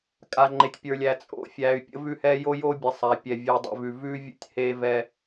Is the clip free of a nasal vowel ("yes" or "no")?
yes